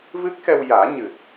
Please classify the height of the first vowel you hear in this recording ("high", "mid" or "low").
high